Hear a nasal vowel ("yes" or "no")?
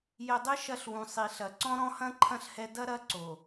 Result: yes